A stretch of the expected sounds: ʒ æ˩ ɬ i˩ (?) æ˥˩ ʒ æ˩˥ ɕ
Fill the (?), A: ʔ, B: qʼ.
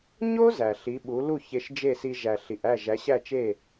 A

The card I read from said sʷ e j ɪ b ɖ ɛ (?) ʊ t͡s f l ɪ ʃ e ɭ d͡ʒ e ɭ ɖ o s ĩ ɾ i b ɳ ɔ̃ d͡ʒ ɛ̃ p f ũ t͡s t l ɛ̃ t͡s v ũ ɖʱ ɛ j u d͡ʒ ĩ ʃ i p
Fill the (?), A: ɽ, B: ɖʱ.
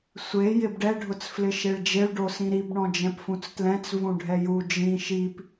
B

